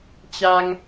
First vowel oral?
yes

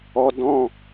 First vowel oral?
yes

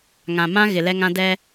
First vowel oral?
no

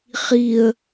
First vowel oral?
yes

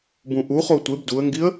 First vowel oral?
no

